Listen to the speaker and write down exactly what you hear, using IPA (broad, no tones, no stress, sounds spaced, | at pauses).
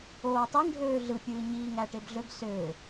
oː tˤ e ŋ ɖʱ øː ɮ ɯ pʲ ɯː ɲ iː ŋ æ ʈ e b ɮ ø b s ø